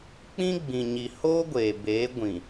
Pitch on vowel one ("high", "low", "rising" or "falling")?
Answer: high